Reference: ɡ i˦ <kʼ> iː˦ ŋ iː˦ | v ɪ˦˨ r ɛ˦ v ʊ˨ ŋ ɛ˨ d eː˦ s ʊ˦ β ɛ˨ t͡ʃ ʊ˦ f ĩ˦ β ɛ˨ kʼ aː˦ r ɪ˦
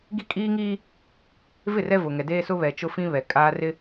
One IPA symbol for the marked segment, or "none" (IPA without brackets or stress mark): kʼ